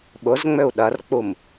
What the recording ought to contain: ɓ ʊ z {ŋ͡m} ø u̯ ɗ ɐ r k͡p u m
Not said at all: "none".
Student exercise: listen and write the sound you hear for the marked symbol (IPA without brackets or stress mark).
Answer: ŋ͡m